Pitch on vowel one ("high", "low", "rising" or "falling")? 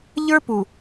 high